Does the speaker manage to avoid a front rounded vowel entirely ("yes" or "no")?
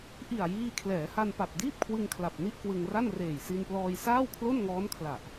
yes